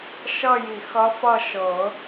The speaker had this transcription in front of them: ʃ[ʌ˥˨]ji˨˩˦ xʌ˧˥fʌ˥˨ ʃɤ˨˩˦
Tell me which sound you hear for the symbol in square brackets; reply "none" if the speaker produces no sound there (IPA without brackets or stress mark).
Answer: ʌ˥˨